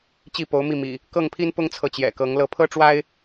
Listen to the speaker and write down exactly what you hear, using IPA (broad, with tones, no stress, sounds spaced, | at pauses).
t͡ɕ i˥˨ p o˨˦ ʊ̯ m i˥˨ m ḭ˨˩ | k ɤ˥˨ ŋ pʰ i˦ n p ʊ˦ ŋ t͡sʰ ɤ˨ t͡ɕ j ɛ̰˨˩ k ɤ˨˦ ŋ l ɤ˥˨ pʰ ɤ˦ ʈ͡ʂ w a˦ ɪ̯